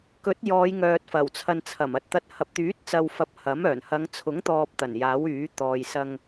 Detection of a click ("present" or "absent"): absent